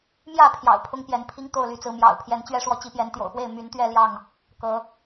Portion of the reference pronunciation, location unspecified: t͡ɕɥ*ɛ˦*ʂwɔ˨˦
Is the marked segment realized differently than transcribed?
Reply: no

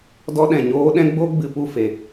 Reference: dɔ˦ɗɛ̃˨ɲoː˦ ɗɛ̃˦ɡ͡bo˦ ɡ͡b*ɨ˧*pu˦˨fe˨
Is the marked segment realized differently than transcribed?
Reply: no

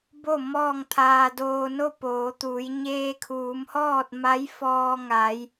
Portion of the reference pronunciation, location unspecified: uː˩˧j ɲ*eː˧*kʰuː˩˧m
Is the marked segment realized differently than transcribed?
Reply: no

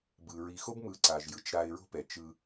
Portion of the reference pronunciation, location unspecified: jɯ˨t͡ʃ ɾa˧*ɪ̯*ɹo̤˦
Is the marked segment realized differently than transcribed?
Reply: no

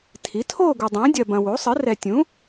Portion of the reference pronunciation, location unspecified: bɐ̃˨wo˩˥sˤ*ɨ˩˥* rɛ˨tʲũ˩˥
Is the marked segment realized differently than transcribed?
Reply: no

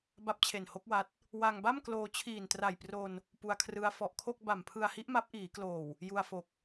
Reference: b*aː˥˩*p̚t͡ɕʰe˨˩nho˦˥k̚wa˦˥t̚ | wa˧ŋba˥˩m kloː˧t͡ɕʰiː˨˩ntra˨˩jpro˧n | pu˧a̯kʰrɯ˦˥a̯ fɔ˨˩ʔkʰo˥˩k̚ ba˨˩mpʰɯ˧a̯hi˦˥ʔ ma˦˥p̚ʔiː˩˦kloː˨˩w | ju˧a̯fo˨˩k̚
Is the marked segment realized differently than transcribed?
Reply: yes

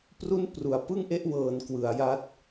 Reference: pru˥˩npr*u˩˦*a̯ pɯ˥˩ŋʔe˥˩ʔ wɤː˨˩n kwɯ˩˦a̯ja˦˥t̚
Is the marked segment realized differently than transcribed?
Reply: no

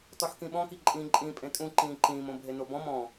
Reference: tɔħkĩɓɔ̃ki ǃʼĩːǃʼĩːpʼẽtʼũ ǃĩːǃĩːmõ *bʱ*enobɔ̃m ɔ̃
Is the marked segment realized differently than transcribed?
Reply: no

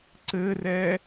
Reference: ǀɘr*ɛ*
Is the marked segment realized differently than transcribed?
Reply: no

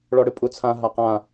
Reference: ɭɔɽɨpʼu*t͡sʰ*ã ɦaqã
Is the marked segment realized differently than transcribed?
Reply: no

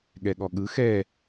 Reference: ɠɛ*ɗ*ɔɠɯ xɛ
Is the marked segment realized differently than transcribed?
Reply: yes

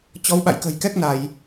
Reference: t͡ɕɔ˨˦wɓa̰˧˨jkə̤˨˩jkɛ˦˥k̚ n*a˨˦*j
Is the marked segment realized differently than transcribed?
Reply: yes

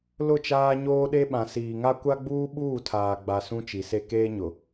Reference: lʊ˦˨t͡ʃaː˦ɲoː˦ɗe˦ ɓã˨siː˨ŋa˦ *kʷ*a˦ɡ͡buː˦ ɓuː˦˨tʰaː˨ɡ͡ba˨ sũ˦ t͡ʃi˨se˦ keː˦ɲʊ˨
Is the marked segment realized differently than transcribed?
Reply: no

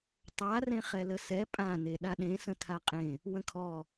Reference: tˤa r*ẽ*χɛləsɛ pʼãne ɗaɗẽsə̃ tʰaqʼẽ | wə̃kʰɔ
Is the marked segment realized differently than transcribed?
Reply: no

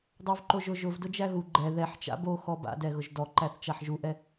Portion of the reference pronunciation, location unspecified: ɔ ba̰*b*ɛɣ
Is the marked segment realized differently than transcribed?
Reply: yes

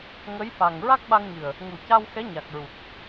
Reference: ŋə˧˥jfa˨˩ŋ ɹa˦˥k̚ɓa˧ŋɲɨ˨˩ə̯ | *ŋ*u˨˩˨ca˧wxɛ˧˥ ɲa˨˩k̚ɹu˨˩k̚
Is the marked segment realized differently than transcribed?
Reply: no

